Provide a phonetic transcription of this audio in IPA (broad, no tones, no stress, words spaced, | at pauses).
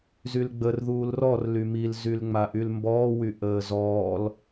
zylɡ͡bər ðuːlrɔr lymil zylŋ͡maʔylmbɔː wyʔəːzɔːl